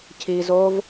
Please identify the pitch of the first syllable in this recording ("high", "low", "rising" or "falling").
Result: low